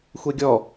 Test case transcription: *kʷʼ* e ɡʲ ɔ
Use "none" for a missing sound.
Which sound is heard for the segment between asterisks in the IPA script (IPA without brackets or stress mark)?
xʷ